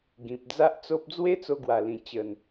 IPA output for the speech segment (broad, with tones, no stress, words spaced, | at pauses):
ɡĩ˨p̚ d͡za˦ʔt͡so˦p̚ d͡zwe˦t͡so˧ɡwa˨˩lĩ˨˩ t͡ɕə˨˩n